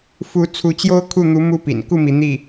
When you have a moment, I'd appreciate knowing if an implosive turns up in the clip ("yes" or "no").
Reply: no